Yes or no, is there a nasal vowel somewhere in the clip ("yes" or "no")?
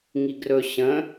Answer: yes